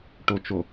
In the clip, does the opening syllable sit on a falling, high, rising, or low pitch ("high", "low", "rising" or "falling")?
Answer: low